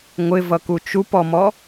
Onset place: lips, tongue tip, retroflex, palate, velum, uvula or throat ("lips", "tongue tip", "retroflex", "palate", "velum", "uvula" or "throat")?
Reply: velum